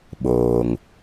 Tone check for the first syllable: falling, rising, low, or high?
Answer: low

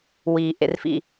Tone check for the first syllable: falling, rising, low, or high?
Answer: low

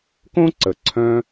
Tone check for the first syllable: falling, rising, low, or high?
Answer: high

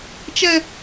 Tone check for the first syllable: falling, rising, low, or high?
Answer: high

